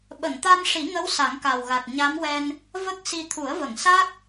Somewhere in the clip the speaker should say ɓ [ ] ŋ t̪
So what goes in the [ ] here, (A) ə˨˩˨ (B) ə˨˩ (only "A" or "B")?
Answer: A